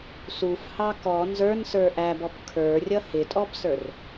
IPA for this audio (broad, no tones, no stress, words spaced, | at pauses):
sufhɑ kɔ nzə˞nsə˞ ʔæbɔp kʰə˞rʲʌ hɪtʼɔbsə˞r